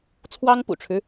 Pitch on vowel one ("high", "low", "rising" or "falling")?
high